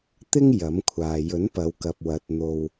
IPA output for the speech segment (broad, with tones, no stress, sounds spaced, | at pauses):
t̪ ɪ˥ ŋ j ɐ˨˥ m kʷʰ aː˨ j ɵ˨˥ n p ɐ˨˧ w k ɐ˨ p̚ w ɐ˨˥ t̚ n̪ o˧ w